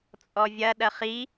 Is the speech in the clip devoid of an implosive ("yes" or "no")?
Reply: no